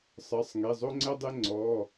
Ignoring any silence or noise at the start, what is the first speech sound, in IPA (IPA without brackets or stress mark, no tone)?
sˤ